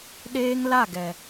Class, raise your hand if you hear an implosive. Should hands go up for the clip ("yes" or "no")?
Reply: yes